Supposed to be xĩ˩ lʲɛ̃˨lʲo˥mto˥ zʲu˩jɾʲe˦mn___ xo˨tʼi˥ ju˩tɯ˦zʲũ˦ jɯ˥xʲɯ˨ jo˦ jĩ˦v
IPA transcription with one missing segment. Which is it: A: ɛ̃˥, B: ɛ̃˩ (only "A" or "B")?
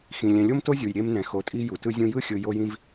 B